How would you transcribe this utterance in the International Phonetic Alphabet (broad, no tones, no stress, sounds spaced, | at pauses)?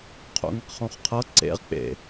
qʰ o̰ ŋ i q χ õ χ qʰ ɤ ǀ ḛ ʁ k͡p ḛ